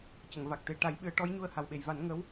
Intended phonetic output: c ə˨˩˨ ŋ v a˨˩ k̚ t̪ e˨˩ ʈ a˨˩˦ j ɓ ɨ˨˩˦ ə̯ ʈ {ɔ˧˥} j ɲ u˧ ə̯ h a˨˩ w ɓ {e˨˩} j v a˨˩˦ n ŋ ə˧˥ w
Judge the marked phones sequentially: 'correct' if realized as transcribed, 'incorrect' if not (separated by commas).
correct, correct